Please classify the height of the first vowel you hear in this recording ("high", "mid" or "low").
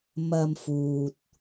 low